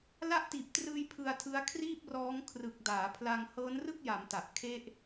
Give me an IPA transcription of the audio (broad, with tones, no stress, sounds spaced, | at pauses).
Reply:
l a˦˥ ʔ t iː˨˩ p̚ t r ɯː˧ j pʰ ɯ˧ a̯ tʰ ɯ˦˥ a̯ kʰ r iː˥˩ p̚ r ɔː˦˥ ŋ kʰ r ɯ˨˩ k̚ d aː˩˦ pʰ l a˧ ŋ h ɤː˦˥ n r ɯ˥˩ k̚ j a˩˦ m t a˨˩ ʔ kʰ e˦˥ ʔ